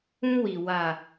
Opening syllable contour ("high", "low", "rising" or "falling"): high